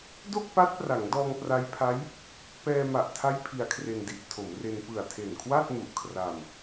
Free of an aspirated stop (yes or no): no